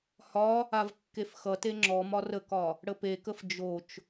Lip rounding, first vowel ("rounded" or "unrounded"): rounded